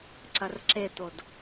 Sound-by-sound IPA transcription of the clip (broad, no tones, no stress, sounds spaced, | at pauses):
ǀ ɐ r ǁ e t̪ o d